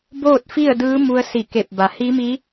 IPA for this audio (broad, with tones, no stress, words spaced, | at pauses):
boː˥˨t̚fi˥˨ə̯dɯː˧˥ mu˧ə̯si˧˩ke˧˩p̚ba˩˧ hi˧˥mi˧˥